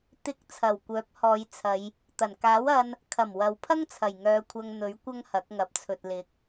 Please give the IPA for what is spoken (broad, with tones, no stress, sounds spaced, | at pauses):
t̪ ɪ˨˥ k̚ t͡sʰ ɐ˨˩ w kʷ œː˨˥ p̚ h ɔː˨˧ j t͡sʰ ɐ˨˧ j | t̪ ɐ˨˩ n k aː˨˥ w ɐ˧ n | kʰ ɐ˨˩ m w ɐ˨ w pʰ ɐ˥ ŋ t͡sʰ ɐ˨˩ j ŋ œː˨˧ kʷʰ ɐ˧ ŋ n̪ ɵ˨˥ ɥ kʷ ɐ˥ ŋ h ɐ˨˥ k̚ ŋ ɐ˨˥ p̚ t͡sʰ ɵ˨ t̚ l ɪ˨˥ k̚